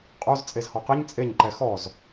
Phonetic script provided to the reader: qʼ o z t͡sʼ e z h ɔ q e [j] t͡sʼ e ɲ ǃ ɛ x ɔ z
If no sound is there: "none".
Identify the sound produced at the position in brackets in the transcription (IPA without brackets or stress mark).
ɲ